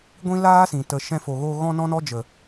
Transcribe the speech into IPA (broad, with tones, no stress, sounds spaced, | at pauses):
ɡʷ ĩ˦ l aː˦ s ĩ˨ t ə˨ ʃ ɛ̃˧ f o˨ ɣ o˧ ɣ ɔ̃˦ n ɔ̃˦ n ɔ˦ d͡ʒ ə˨